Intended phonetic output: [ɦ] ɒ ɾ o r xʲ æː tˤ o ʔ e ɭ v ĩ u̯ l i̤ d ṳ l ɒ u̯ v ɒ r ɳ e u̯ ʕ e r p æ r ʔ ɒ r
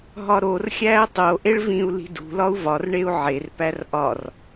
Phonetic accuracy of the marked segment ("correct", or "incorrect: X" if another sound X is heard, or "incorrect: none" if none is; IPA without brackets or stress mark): correct